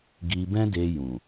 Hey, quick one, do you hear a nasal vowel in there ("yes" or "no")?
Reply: yes